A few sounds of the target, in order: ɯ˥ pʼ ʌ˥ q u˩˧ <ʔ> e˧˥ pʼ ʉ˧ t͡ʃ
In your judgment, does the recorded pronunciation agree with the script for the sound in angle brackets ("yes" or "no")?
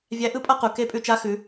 no